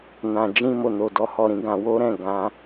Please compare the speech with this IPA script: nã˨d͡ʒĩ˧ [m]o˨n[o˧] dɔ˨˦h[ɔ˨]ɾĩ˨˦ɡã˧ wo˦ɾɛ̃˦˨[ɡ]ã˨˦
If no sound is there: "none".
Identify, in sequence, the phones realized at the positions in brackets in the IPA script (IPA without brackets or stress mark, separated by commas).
m, o˨, ɔ˦˨, ɡ